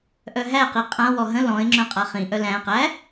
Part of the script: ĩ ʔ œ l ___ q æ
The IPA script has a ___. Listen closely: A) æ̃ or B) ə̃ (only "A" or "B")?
A